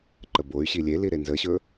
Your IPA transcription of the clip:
ǃ ə b o y̯ ɕ i lʲ e l i ɾ e n z ə ɕ ɵ

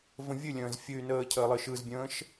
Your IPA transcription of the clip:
v ə̃ vʲ ɨ lʲ ə̃ː z fʲ ɨ y̯ n əː cʰ əː lˠ ɨ ʃ ɯ z bʲ ə̃ː ʃ

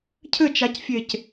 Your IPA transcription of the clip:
cʰ ɘ t͡ʃ a c fʲ e c

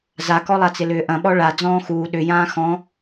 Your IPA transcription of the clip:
z a k ɔ lˠ a t͡s ɪ l ʏː ʔ ɐ̃ ɓ ɔ ɭ a d͡z ɔ̃ː x uː ɗ ʏ j ãː x ɔ̃

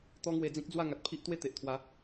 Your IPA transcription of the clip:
t̪ ɔ˦ ŋ w e˧ d͡z ĩ˦ k̚ d͡z w a˥˧ ŋ a˨ t̚ pʰ i˦ ʔ t̪ w e˥˧ t̪ e˨ ʔ t̪ʰ w a˨˦

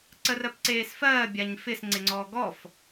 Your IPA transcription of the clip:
ǀ ə r ɜ p ǀ eː s f ɜː bʲ a ɲ f ɪ s ŋ͡ǀ ɪ ŋ͡ǀ ɔː ɡ ɔ f

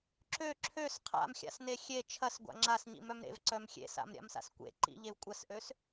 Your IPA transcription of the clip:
ǁ ø ǁʰ ø s qʰ a̰ m xʲ a̰ s n e xʲ e t͡ʃʰ ɐ s ɡʷ a̰ ŋ͡ǁ a s ɲ ḭ m œ m ɾ ḛ v ǀ œ m xʲ ḛ s a̰ m ɾʲ a̰ m s a̰ s kʷ ḛ ǃ ḭ ʎ e v kʷʼ ɐ s ʔ ø s

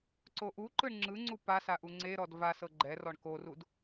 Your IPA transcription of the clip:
ǀ o ʔ u ǃ ɯ ɳ ŋ͡ǁ ɯ ŋ͡ǀ u p a s a ʔ u ŋ͡ǀ e ɾ ɔ d v a s ɤ ɡ͡ǃ ɛ r ɔ ɳ k o r u d

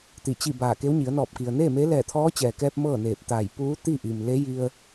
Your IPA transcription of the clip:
t̪ i˧˩ t͡ɕ i˥˨ b aː˧˩ k e˧˥ w ɲ i˩˧ ə̯ n ɔː˧˩ p̚ k i˩ ə̯ n eː˥˨ m eː˧˥ l ɛː˧˩ t̪ʰ ɔː˧˥ t͡ɕ ɛː˩ k ɛː˧ p̚ m ɤː˥˨ n eː˧˩ p̚ t̪ aː˧˩ j p uː˧˥ t̪ i˥˨ ʔ i˩ m l e˧˥ j i˧ ə̯

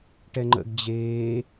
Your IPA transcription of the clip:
ʈ ɛ ŋ͡ǃ ə̰ ɡ d͡ʑ eː

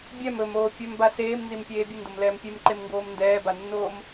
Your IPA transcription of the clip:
bʲ ɛ m ɵ m oː pʲ ɵ m b a s eː m n z i m pʲ eː bʲ ɨ n d o m l ɛː m pʲ e m ǃ e m ŋ ɡ oː m n d ɛː b a nː oː m

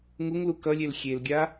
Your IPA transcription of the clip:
ŋ u ŋ l u k ʌ lʲ e l xʲ e l ɡʲ a

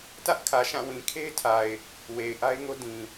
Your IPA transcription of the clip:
t ä˦ ʔ kʰ ä˨ ʃ ã˦˨ w ĩ˨ kʰ e˦ ɪ̯ tʰ a˨ ɪ̯ | w e˨ ɪ̯ ʔ a˦ ɪ̯ ŋ o˦ d ĩ˨

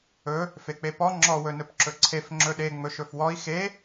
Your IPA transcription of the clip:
ɵ | f e k͡p e p ɔ ŋ͡ǁ ɔ w ɵ n ɵ p ǁ ɵ ǀʰ e f ŋ͡ǁ ɵ ɗ e ŋ͡m ɵ ʃ ɵ f w ɔ i̯ x e

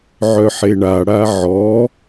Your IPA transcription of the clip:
ʕ œ ħ e ɳ a ɽ a ʕ ɔ

